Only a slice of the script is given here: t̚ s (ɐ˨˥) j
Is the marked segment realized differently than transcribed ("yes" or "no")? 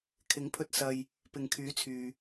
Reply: yes